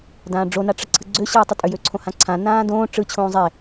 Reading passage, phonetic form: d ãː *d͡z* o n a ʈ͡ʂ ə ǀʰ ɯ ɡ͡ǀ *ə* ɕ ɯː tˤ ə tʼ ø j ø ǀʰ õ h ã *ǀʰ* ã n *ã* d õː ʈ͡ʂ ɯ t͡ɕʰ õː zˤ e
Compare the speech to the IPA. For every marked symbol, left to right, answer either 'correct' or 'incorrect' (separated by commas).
incorrect, incorrect, correct, incorrect